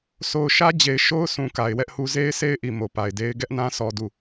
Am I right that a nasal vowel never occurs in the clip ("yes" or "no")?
no